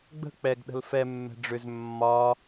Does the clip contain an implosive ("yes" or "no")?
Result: yes